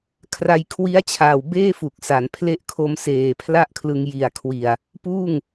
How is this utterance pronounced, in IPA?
kʰ r a˧ j kʰ w i˦˥ a̯ t͡ɕʰ aː˨˩ w b eː˥˩ f u˨˩ k̚ s a˩˦ n pʰ l e˦˥ ʔ kʰ o˧ m s eː˨˩ pʰ l a˥˩ ʔ kʰ l ɯ˧ ŋ j i˨˩ a̯ kʰ w i˨˩ a̯ | p uː˥˩ ŋ

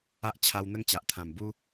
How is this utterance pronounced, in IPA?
a˦ ʔ t͡ɕʰ a˧ w n̪ ə˦ ŋ t͡ɕ a˨ ʔ t̪ʰ ã˨˩ m b u˦

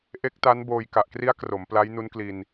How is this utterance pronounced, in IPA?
ʔ e˦˥ k̚ t a˦˥ n b oː˧ j k a˨˩ ʔ k r i˦˥ a̯ k r o˩˦ m p l a˦˥ j n u˦˥ n k l i˧ n

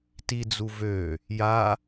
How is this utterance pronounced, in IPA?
t i d͡z u v ø | j a

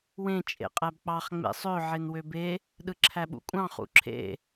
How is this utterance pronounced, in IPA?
w ẽ t͡ʃʼ ḛ qʼ æ b k͡p ɑ χ ŋ͡m ḛ sˤ ø ʕ e n w ø b e | ɗ ɯ ǁʰ æ ɓ ṵ kʷʼ ɑ̃ χ ṵ ǁʰ ḛ

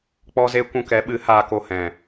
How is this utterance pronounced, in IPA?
k͡p ɔ˦ z e˦ kʷ ũ˧ k ɛ˨˦ ɓ ɨ˨˦ h aː˧ k o˧ h ɛ̃˨

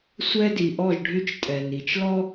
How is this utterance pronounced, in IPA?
sʷ ɛ˦ d i˨ ʔ ɔ˦˨ ʒ ɖʱ y˦ t͡ʃ tʼ ɛ˨ n i˨ t͡ʃ l ɔ˦

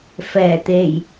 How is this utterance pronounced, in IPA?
f ɛː˨˩ t̪ e˨˩ j

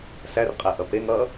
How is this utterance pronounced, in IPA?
s æ r qʼ æ ʔ ʌ p e ŋ ʌ

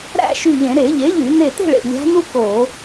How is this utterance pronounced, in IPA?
ɾ æ̰˥˨ ʃ y˧˩ ʎ ẽ˧˩˧ ɾ e˧˩˧ ʎ e˩˥ ʎ y˧˩˧ n e˧˩ t e̤˥˨ ɭ ḛ˧˩ lʲ æ̤˧˥ n u˥ k o˧˩˧

